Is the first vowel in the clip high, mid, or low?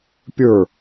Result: mid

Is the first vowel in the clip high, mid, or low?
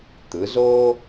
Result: high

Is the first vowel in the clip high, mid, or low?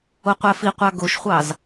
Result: mid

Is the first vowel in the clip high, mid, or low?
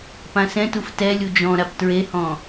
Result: low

